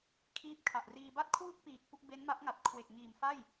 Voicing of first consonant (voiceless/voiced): voiceless